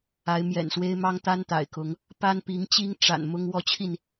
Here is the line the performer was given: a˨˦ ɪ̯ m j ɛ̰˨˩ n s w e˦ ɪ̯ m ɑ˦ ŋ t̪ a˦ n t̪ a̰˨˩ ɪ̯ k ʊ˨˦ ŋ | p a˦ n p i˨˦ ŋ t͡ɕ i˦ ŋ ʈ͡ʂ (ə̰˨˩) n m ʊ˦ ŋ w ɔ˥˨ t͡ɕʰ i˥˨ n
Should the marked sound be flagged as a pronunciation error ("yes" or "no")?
yes